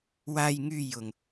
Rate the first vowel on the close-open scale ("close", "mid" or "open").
open